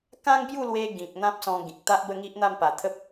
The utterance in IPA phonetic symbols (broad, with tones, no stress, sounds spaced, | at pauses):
k ã˦ ŋ b j u˥˧ l w e˧ ɡ ĩ˨ k̚ n̪ ã˦ p̚ s ɔ̃˧ ɡ ĩ˨ k̚ t̪ a˦ ʔ b ə˥˧ ŋ i˦ ʔ n̪ a˥˧ m p a˨˩ t̪ʰ ə˦ p̚